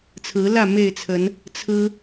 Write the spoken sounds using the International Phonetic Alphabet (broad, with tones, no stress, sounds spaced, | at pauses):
t͡sʰ ɹ̩˨˦ l ä˥˨ m e˥˨ ɪ̯ t͡sʰ ə˨˦ n | t͡sʰ ɹ̩˦